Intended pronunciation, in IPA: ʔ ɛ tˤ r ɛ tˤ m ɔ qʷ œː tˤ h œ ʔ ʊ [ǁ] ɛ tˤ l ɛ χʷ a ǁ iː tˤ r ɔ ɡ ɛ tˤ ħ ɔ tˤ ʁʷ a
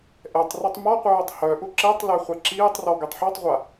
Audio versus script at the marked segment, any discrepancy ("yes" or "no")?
no